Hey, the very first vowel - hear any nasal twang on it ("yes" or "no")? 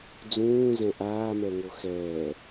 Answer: yes